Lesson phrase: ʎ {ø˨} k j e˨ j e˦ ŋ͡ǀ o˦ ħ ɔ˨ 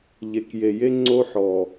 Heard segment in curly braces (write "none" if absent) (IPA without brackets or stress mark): e˨